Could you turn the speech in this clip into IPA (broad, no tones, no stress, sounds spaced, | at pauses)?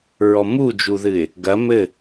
ɹ ɔ m u d͡ʒ u ð ɨ ɪ̯ | ɡ ɐ m ɘ